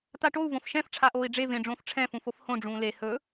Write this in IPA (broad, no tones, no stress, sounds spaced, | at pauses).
t̪ a ʈ o u̯ v õ f ʃ ɛ̃ f ʈ͡ʂʰ a ʔ oː i̯ ɖ͡ʐ e v ẽ ɖ͡ʐ õː f ʈ͡ʂʰ ɛ̃ f ũ f o f h õ ɖ͡ʐ ũː l e h ɵ